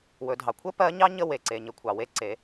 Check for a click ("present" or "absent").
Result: present